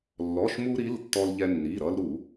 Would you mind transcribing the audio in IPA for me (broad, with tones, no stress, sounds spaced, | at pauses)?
lː ɔ˩˧˩ ʃ m u˧ ɾ i˩˧˩ l tː ɔ˧ l ʎ ɛ˧ nː i˩˧˩ ɾ ʌ˧ l ɾ u˧˩˧